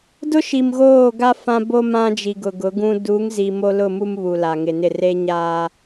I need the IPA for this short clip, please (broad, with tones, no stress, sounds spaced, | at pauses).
d ʊ˦ ʃ i˨ m ɣ oː˦˨ ɡ a˦ f ã˦ b o˦ m ã˦ d͡ʒ i˨ ɡ ʊ˨ ɡ ʊ˨˦ ɡ ũ˦ d u˨˦ ŋ z i˨ m o˦ l ʊ˦˨ m u˦ m β u˨ l a˨ ŋ ɪ˨ n ɪ˦˨ r e˦ ɲ aː˦